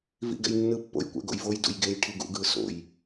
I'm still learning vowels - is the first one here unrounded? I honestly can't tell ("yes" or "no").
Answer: yes